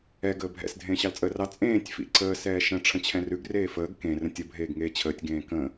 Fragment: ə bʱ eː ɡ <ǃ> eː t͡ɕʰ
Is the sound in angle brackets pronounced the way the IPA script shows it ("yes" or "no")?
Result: no